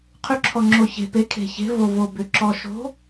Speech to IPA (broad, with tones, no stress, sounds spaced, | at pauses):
qʰ ʏ˧˥ ǁʰ ɔ˧ ŋ͡ǁ o˧ ç e̤˧ p e˧˥ kʰ e̤˧ ç e̤˧˥ v o˧ v o˧ b ʏ˧ ǁ ɔ˧ ʃ o̤˧˥